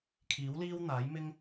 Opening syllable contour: rising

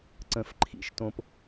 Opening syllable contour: rising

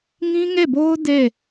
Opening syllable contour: high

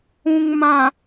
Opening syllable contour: low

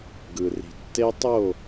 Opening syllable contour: low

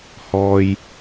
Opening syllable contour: low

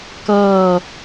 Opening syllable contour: falling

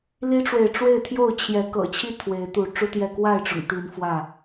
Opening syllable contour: high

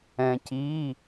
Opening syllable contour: low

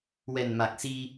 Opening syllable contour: low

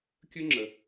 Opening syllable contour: high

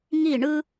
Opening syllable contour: falling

